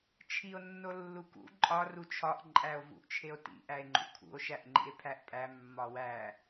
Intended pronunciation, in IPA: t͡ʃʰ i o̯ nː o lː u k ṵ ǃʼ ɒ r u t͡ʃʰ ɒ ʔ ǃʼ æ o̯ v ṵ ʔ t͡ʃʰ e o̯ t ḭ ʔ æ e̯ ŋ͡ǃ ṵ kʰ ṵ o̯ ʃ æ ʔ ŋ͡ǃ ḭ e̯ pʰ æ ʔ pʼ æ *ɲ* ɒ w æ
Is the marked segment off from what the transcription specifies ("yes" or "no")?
yes